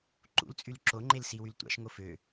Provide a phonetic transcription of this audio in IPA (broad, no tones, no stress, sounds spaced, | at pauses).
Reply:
ǃ ṵ l t͡sʼ y l ǁ o ŋ͡ǃ e l s i w y l tʷ ɑ̰ ʃ ŋ o f ø